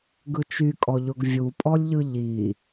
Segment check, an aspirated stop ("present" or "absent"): absent